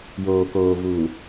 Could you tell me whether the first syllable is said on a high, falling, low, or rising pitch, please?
low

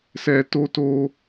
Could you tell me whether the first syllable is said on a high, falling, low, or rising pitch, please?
low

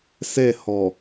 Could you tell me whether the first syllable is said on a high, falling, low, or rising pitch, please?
falling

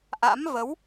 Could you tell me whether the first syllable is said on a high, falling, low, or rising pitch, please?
rising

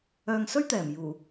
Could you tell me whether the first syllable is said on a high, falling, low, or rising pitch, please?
low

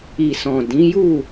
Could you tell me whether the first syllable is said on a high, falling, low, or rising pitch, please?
low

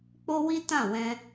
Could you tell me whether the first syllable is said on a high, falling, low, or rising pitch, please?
high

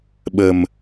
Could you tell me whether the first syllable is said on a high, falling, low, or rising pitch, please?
low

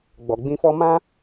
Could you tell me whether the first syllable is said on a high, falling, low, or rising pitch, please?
low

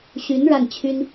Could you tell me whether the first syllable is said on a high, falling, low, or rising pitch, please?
rising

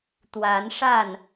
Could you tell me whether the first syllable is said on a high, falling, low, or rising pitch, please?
rising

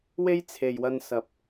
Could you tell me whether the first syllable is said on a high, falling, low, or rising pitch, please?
high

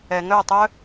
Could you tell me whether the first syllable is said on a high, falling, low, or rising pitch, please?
low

